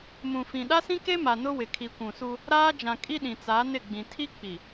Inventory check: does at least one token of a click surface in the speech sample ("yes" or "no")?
no